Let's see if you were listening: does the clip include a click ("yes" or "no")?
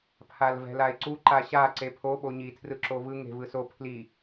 yes